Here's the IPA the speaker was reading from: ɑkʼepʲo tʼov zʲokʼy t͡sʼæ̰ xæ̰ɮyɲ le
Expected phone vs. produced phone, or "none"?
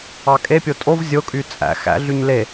none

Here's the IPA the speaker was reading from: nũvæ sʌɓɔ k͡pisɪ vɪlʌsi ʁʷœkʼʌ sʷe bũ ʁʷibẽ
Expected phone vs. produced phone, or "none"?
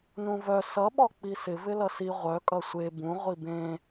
æ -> œ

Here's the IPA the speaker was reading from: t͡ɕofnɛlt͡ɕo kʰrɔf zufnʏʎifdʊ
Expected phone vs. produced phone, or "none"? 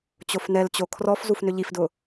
none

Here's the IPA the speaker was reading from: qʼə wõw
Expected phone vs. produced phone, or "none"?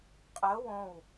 none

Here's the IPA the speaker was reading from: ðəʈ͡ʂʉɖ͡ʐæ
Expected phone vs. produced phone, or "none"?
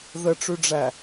none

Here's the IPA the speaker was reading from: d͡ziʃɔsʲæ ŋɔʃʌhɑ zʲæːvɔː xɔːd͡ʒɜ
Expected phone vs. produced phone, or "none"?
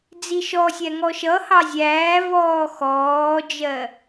none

